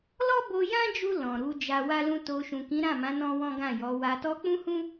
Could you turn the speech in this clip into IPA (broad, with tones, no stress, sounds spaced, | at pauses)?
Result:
l ɔ˦ b o˧ j ã˦ d͡ʒ u˧ l ɔ̃˨ ɾ u˨˦ d͡ʒ a˧ w a˦ l ũ˦ t o˧ ʃ ũ˨ k ĩ˨˦ ɾ ã˦˨ m ã˨˦ n ɔ̃˦ w ɔ̃˦ ɡ ã˦˨ j ɔ˨˦ w a˧ t ɔ˧ k͡p ũ˦ h ũ˦